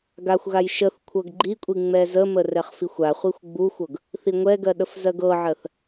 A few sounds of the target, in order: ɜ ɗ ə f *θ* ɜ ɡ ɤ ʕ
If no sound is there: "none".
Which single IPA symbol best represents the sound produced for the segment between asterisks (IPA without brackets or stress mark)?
z